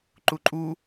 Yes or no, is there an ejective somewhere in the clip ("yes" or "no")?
yes